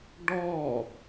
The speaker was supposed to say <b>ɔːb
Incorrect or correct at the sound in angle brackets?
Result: incorrect: ɖ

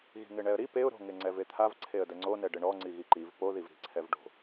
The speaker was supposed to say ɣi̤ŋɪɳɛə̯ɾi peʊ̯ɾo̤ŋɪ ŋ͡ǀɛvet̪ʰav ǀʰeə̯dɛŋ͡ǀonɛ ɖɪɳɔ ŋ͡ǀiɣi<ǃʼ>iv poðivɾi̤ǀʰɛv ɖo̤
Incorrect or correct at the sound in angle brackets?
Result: incorrect: ǃ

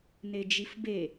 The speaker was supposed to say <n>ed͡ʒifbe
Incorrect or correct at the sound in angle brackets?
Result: correct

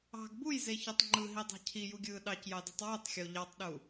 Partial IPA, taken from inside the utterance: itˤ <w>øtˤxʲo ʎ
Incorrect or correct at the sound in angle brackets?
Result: correct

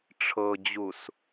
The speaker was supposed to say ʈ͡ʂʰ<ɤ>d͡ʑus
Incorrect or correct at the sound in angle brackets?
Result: correct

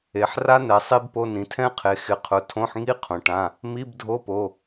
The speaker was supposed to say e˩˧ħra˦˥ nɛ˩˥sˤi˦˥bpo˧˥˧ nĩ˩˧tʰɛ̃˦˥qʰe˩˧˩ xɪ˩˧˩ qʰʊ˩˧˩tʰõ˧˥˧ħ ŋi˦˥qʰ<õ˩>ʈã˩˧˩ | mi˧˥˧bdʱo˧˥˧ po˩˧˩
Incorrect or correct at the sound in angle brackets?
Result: correct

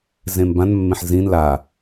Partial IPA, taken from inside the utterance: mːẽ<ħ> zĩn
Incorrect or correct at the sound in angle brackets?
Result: correct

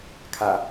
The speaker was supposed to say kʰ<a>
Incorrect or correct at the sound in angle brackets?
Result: correct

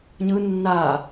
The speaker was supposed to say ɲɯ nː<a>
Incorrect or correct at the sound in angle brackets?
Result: correct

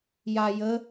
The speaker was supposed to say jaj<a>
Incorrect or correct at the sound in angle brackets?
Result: incorrect: ə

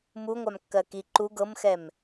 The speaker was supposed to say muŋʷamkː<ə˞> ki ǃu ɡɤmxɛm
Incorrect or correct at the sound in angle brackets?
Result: incorrect: ɜ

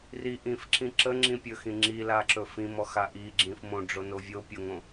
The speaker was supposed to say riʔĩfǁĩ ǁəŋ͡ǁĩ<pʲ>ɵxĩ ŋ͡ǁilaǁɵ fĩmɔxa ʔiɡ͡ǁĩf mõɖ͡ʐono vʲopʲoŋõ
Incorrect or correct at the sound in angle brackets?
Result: correct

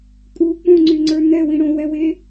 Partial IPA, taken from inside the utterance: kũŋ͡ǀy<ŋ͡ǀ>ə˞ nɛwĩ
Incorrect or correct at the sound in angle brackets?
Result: correct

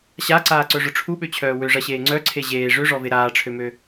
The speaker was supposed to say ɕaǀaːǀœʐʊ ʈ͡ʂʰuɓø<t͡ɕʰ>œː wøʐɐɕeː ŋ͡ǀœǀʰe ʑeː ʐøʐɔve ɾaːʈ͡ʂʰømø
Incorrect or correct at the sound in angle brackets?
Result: correct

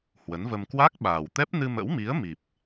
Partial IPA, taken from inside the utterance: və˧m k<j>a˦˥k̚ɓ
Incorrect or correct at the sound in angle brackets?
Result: incorrect: w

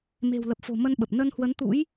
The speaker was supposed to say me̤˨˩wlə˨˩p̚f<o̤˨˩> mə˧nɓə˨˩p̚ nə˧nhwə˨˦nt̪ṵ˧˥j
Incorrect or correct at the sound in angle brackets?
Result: correct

